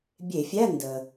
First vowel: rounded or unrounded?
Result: unrounded